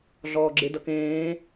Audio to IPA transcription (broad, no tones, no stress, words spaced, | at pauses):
ɮɔːɡ͡ǁɪ dʌkẽː